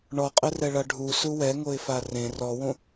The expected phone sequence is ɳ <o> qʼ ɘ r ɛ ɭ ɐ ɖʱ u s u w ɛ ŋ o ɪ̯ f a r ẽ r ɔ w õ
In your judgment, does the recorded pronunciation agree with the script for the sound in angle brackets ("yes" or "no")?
no